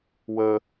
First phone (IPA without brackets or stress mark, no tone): w